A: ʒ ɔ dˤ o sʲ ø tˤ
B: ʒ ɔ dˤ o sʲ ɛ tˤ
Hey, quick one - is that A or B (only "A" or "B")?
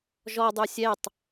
B